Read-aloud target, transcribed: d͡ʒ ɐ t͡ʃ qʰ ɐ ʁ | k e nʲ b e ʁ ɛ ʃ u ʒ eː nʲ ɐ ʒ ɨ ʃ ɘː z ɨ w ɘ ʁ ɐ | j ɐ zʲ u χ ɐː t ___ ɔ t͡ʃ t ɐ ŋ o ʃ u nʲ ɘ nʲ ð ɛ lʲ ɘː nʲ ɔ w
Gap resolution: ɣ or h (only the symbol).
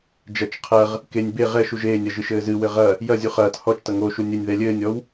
h